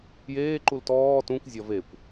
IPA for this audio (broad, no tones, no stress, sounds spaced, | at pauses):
j eː ǃ u l t ɔː t ũ kʷ zʲ ɒ v e kʷ